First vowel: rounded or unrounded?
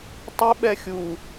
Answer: unrounded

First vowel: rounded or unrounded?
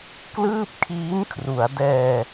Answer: unrounded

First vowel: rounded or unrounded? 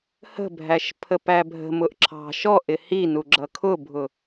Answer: unrounded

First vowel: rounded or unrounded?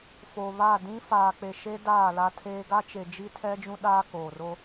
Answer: rounded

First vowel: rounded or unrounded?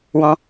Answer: rounded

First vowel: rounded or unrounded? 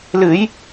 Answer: unrounded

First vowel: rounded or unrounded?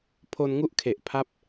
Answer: rounded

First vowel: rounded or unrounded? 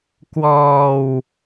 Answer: rounded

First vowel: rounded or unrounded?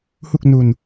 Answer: rounded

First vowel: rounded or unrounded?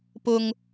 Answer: rounded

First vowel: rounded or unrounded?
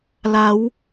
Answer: unrounded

